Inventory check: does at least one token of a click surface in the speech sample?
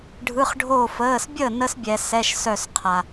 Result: no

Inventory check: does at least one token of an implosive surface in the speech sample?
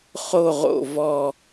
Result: no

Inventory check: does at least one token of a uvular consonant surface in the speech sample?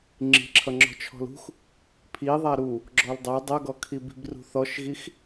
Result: no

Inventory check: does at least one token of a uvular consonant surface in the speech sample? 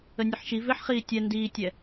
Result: yes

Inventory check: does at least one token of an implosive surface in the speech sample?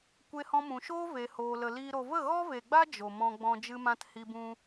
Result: no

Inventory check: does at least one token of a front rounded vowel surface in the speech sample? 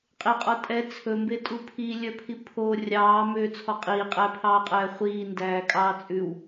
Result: yes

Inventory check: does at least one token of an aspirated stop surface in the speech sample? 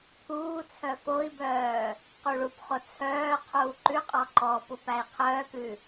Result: yes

